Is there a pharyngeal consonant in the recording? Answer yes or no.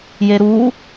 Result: no